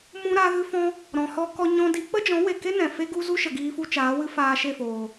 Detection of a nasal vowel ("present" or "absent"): present